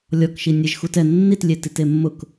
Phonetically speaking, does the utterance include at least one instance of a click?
no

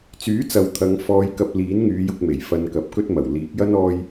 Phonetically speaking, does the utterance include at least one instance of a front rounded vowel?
yes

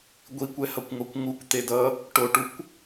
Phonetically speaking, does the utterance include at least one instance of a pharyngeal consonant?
no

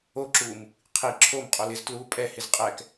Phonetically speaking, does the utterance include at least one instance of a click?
yes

